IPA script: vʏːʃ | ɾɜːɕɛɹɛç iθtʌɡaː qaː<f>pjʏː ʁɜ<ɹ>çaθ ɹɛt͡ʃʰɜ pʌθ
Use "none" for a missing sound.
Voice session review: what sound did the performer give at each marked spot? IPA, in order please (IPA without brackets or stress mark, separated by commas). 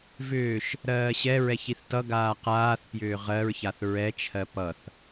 θ, ɹ